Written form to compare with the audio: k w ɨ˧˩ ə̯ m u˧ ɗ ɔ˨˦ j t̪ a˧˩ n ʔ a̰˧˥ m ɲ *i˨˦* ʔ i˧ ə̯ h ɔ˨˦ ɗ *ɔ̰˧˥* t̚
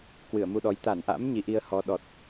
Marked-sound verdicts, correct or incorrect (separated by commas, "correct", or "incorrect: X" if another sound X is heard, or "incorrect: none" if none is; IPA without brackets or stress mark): correct, incorrect: ɔ˨˩